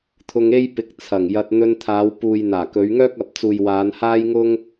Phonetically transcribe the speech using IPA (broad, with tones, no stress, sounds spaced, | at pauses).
t̪ʰ ʊ˧ ŋ e˥ j p ɪ˨˥ k̚ t͡sʰ ɐ˨˩ ŋ j ɐ˧ t̚ n̪ ɵ˧ n t̪ʰ aː˨˧ w p uː˨ j n̪ aː˨˩ k ɵ˨˧ ɥ ŋ œː˥ k̚ ɐ˨ p̚ t͡s uː˨ j w aː˨˧ n h aː˥ j ŋ ʊ˥ ŋ